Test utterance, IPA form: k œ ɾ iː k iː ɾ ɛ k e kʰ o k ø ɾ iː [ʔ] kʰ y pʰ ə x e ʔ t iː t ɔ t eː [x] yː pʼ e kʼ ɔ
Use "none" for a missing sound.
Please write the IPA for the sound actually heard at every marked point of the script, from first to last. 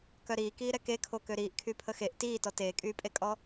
ʔ, kʼ

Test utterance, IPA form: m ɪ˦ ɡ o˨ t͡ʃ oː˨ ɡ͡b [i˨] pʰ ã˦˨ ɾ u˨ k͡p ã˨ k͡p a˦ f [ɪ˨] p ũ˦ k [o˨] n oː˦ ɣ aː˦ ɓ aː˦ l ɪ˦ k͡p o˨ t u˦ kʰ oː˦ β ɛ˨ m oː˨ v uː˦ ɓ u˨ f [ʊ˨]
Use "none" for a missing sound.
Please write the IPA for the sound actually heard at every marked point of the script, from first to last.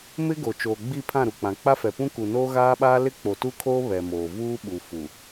i˦˨, ɛ˨, u˨, u˨

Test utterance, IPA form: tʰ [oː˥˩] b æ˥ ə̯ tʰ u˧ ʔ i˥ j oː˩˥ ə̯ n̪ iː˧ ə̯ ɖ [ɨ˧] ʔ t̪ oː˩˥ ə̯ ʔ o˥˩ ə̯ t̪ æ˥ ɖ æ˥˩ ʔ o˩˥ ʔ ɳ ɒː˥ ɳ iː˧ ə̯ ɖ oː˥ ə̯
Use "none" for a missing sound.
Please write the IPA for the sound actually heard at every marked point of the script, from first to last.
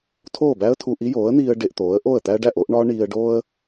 oː˥˩, e˧

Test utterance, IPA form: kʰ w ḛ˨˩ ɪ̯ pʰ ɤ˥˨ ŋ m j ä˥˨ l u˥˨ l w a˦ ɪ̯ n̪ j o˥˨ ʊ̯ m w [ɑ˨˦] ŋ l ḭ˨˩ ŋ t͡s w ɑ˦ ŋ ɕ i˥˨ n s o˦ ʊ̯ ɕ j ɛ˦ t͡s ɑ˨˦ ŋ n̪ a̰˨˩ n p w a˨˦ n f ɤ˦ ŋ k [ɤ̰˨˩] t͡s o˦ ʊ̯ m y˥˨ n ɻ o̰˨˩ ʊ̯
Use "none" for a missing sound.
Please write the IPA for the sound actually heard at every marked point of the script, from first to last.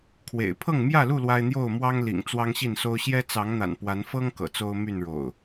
ɑ˦, ɤ̰˨˩

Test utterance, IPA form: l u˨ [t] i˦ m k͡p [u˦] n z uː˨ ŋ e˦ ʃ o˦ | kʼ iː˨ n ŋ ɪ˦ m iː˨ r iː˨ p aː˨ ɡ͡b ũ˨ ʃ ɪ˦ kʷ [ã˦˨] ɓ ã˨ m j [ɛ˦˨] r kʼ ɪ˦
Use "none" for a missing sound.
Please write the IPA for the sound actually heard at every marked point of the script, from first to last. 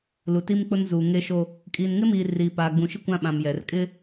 t, ʊ˦, ã˦, ɛ˨

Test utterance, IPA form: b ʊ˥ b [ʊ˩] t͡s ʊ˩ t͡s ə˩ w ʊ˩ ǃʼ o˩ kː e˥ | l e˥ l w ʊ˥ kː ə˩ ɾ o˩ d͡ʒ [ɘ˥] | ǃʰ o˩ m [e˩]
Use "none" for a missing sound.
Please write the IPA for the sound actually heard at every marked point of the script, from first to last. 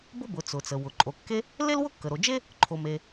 ʊ˩, e˥, e˩

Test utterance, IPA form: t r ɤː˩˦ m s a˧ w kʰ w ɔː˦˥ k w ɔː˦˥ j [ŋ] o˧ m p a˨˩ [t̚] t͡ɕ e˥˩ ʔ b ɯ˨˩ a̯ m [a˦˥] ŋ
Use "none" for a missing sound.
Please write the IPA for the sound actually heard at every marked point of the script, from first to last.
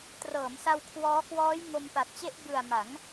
ŋ, t̚, a˩˦

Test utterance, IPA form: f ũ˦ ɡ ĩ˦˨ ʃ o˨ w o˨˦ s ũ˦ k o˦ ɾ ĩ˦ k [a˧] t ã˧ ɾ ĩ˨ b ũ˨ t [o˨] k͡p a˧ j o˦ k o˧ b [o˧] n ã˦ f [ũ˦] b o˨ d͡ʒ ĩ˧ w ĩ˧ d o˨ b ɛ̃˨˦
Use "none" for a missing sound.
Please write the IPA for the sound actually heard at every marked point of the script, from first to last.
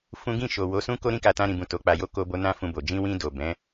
a˧, o˨˦, o˧, ũ˧

